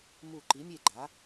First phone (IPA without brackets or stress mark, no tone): m